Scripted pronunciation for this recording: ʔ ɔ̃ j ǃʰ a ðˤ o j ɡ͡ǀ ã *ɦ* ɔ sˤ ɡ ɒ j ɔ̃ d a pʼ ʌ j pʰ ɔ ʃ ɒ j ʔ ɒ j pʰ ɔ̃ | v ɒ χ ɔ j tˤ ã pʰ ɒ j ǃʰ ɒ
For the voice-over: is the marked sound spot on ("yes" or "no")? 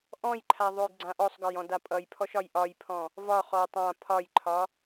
no